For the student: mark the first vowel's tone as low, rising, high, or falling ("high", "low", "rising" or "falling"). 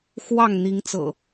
falling